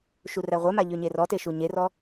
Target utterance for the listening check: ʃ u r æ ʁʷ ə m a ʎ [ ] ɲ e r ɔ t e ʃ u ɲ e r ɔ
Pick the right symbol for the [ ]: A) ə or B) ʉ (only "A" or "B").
B